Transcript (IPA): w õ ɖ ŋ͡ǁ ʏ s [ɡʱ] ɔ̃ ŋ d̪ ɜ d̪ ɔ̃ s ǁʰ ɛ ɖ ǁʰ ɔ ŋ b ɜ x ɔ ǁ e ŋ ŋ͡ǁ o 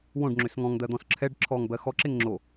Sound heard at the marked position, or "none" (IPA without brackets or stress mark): ŋ